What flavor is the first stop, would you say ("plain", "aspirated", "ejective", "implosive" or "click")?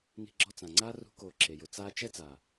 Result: click